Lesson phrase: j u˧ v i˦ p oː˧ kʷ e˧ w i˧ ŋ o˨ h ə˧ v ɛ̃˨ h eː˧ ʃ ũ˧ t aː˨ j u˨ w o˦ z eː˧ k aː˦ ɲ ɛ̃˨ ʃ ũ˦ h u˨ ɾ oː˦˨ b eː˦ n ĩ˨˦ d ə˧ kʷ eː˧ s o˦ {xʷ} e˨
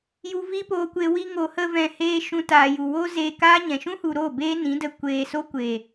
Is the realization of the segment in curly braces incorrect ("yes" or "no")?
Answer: yes